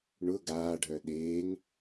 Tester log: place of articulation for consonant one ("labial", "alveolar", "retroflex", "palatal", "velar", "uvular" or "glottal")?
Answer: retroflex